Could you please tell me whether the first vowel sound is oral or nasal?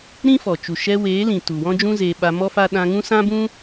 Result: nasal